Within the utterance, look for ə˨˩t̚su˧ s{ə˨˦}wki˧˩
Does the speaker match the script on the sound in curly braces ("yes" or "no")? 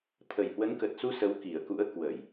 yes